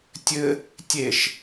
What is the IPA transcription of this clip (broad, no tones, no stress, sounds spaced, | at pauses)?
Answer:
tʲ ɘ | tʲ e ʃ